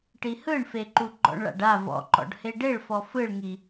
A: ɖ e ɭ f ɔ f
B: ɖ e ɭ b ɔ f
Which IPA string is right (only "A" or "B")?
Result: A